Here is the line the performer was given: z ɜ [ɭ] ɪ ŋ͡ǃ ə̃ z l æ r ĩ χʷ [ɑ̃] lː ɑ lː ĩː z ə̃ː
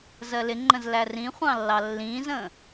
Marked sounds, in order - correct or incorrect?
incorrect: l, correct

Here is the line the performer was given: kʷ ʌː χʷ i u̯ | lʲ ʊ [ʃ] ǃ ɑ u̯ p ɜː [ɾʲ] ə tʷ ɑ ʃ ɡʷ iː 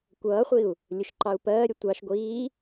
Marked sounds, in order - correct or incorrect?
correct, correct

